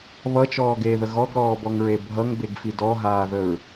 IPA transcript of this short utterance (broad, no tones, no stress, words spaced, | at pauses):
βʌt͡ʃɔːɡeːðə ɣɔɡɾɔːbɔŋɹe bʱʌŋbeɡfi dɔɦaːðəɹ